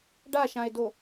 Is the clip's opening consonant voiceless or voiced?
voiced